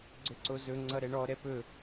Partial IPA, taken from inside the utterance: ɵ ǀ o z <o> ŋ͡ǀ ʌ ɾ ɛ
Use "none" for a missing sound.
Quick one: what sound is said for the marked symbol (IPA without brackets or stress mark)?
ɵ